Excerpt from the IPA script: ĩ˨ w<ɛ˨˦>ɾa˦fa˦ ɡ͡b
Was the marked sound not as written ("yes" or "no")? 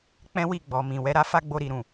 no